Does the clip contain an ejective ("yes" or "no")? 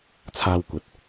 no